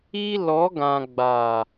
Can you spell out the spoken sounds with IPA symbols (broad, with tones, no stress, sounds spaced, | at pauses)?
i˦ l ɔ˨˦ ɡ ã˨ ɡ͡b a˨